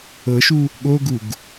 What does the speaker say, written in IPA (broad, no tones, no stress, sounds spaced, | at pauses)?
ɤ ʃ u | ɠ o ɡ u ɡ